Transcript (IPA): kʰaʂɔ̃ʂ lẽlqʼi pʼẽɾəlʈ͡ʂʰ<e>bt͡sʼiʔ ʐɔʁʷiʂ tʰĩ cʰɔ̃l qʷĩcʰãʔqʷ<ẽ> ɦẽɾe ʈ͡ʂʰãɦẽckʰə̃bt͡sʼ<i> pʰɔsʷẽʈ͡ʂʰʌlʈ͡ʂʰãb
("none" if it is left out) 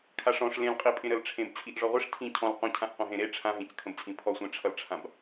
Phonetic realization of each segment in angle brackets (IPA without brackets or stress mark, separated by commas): ẽ, ĩ, ĩ